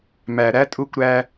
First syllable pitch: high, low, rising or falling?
low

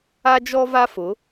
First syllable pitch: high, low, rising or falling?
high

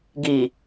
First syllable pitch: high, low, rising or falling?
low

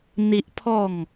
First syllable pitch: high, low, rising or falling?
high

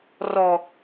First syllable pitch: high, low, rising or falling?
low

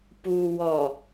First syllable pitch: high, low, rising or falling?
low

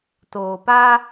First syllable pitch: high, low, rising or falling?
low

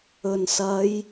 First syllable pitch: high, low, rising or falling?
low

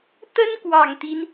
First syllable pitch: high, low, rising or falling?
high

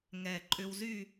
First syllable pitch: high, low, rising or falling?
low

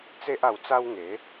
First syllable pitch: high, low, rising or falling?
high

